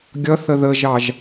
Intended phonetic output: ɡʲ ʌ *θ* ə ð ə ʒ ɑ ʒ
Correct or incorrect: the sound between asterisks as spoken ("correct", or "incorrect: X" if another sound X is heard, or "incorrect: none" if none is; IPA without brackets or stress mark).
correct